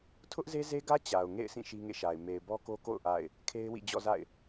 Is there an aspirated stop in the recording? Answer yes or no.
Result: yes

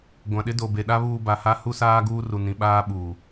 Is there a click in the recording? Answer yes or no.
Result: no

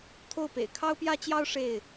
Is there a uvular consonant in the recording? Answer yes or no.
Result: no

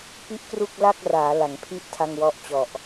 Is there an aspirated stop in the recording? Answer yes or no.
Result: yes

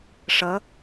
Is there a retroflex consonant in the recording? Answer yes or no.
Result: yes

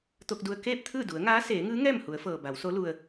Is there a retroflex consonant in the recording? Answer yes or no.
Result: no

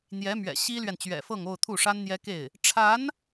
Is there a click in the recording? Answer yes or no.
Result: no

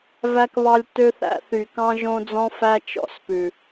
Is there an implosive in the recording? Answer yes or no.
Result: no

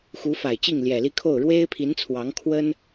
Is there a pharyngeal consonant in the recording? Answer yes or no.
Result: no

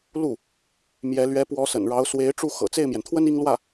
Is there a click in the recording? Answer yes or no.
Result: no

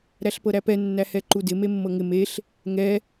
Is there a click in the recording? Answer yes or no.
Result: yes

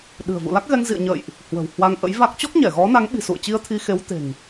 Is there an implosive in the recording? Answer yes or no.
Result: yes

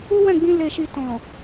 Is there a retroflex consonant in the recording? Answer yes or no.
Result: no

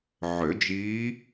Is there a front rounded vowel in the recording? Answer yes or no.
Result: yes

